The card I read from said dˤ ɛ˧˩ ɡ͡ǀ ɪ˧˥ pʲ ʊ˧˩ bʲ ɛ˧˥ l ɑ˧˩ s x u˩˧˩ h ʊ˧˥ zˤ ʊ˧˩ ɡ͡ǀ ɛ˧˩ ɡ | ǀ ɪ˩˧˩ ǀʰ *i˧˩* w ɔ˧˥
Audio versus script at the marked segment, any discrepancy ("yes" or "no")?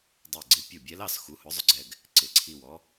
no